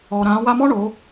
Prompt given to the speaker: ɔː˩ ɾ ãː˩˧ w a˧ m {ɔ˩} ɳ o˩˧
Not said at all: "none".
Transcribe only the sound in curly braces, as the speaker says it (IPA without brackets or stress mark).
ɔ˥